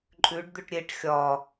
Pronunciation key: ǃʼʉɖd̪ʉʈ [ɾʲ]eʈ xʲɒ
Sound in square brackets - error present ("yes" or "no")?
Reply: no